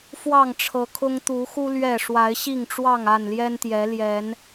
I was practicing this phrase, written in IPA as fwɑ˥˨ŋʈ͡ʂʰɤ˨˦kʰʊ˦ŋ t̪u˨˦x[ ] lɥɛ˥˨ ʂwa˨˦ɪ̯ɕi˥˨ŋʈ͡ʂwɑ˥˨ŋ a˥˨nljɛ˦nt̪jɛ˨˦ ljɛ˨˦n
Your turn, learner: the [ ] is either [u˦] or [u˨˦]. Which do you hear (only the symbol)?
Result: u˦